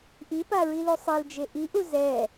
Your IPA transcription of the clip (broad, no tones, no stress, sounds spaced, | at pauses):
ʔ i p a ɹ i l u sˤ e l d͡ʒ e ʔ i ʔ u z ɛ